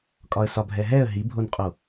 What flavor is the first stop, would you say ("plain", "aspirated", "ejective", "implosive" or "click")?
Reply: ejective